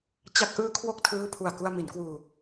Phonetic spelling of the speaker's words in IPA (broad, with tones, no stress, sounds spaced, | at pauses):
t͡ɕ a˦˥ k̚ ʔ ɯː˦˥ kʰ w o˦˥ k̚ tʰ ɯː˦˥ pʰ u˨˩ a̯ k u˧ a̯ m i˩˦ n k w uː˧